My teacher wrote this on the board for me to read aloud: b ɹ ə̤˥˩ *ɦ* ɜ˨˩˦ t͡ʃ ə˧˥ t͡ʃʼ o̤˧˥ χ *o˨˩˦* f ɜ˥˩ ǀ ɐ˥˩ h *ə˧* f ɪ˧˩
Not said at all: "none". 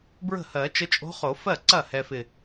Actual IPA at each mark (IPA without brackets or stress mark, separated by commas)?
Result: h, o˨˩˦, ɛ˧